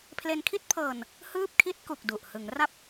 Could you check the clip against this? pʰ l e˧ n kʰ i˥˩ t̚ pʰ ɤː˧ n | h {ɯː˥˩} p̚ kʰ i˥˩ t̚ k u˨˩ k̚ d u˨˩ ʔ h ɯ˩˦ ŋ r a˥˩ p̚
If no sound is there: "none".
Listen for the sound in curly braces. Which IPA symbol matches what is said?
ɯː˥˩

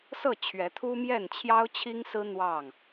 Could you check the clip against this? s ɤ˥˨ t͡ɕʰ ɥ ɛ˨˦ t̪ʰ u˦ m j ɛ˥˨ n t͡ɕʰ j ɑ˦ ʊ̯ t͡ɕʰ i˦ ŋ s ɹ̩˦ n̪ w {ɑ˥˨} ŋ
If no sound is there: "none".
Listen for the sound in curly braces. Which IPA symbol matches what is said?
ɑ˥˨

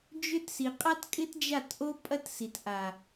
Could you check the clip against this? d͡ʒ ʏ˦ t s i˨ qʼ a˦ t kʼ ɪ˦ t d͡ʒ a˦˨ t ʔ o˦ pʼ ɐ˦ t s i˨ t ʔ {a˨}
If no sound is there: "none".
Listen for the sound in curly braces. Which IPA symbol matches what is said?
a˨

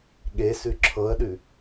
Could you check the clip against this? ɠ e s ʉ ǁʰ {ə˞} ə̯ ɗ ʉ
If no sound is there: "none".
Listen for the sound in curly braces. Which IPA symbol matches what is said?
ɤ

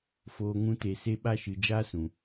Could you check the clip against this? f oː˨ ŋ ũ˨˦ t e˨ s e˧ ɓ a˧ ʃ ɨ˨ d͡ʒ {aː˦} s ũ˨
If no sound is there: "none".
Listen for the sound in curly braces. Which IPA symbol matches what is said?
aː˦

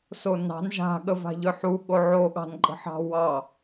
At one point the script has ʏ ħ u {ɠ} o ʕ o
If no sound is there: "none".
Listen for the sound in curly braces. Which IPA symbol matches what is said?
ɠ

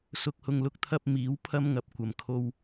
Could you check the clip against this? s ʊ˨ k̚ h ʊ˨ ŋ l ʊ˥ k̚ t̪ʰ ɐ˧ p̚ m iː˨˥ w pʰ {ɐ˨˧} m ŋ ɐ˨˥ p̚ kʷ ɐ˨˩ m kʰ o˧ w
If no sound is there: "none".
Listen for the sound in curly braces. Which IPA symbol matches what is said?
ɐ˥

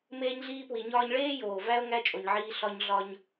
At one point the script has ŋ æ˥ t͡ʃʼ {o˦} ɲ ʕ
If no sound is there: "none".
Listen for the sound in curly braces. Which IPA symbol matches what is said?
o˩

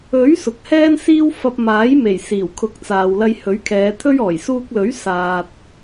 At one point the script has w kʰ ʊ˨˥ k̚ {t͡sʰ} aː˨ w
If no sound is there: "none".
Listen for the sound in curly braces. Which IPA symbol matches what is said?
t͡s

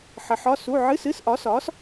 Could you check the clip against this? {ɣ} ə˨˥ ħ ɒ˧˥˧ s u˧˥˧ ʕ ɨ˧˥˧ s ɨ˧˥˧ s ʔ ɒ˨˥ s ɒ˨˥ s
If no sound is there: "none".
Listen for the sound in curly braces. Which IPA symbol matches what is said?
ħ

